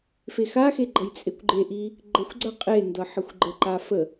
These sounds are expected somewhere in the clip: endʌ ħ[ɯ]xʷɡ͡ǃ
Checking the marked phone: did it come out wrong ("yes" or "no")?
yes